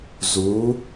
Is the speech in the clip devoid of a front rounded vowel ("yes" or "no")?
yes